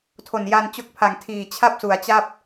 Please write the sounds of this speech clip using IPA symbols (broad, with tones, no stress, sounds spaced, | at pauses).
tʰ o˨˩ n j a˧ n t͡ɕ o˦˥ k̚ pʰ a˨˩ ŋ tʰ iː˨˩ t͡ɕʰ a˥˩ p̚ s u˩˦ a̯ t͡ɕ a˥˩ p̚